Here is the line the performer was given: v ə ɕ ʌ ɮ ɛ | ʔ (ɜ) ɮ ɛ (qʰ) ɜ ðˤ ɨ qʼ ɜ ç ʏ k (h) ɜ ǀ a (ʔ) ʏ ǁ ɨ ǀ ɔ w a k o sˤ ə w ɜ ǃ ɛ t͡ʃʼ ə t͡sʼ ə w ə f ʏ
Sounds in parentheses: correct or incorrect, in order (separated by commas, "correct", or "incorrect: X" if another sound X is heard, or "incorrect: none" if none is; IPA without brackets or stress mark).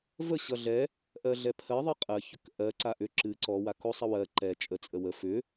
correct, incorrect: pʰ, incorrect: ʔ, correct